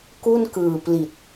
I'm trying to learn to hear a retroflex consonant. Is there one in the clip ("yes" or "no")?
no